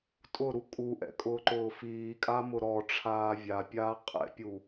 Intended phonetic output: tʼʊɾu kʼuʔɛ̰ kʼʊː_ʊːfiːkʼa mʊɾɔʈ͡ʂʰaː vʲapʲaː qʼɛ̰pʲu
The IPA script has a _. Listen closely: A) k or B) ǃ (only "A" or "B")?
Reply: B